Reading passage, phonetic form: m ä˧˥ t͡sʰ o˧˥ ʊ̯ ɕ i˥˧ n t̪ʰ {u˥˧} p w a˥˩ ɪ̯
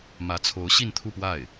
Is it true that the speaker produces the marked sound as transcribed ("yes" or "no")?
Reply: yes